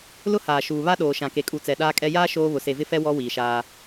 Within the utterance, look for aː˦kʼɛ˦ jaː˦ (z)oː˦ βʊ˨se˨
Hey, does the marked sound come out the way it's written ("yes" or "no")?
no